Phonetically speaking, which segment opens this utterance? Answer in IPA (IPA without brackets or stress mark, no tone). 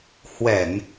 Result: h